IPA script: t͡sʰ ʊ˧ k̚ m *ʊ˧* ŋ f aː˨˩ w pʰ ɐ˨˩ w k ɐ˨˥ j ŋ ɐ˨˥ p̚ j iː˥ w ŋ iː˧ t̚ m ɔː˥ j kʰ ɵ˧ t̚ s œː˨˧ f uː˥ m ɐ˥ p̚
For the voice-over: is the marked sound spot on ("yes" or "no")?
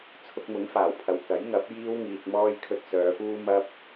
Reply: no